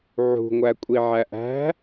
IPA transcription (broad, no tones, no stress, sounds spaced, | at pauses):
ʕ ṳ ŋʷ æ kʷʼ i ʕ æ ʔ æ̤